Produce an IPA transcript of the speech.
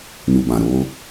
n u˨ b ã˨ ɾ oː˦

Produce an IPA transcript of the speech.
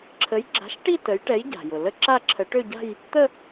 ǁʰ ə˨˥ j ɡ͡ǁ a̤˨˥ ʃ ʈ i˥˧ t ə˨˥ j ʈ ɛ˨˥ j ɟ a̤˩ j ʊ˩ l ə˥˧ ǁ a˥˧ ǁʰ ə˨˥ ʈ ø˥˧ ɟ a̤˥˧ j | t̪ ə˥˧

